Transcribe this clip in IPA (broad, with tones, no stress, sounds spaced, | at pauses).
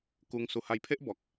k u˧ ŋ s u˨˩ h a˧ j pʰ e˦ ʔ b ɔ˨ k̚